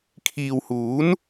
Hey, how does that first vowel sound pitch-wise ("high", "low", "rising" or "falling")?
low